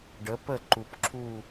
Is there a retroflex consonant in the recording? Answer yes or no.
yes